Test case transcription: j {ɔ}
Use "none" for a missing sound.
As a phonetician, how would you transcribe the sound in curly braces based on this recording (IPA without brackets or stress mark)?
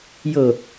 ɤ